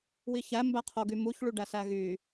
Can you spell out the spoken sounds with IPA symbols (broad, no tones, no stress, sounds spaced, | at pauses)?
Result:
w i ç æ m b æ qʰ o ɡ y m u ç ɭ y ɖ æ s æ ɣ y